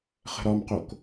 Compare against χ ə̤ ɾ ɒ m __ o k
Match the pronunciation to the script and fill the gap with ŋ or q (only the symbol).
q